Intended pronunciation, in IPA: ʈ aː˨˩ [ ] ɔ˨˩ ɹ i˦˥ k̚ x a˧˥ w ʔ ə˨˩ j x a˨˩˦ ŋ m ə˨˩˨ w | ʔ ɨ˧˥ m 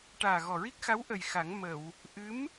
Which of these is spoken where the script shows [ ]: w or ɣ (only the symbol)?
ɣ